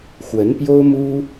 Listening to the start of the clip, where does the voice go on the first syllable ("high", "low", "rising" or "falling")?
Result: rising